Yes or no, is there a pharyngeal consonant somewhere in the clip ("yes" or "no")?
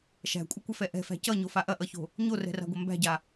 no